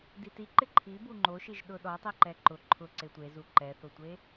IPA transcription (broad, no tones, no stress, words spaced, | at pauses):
diti ǃɪǃʰi buŋ͡ǃoʃiʒ ɗʊɗɔtˤi ǃɛǃʊ ǃʰʊ ǀetʷezu ǃɛθʊtʷe